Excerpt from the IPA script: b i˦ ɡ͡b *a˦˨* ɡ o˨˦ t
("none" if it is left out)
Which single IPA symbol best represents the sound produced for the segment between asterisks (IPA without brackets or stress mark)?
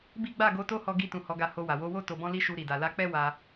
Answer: a˦˨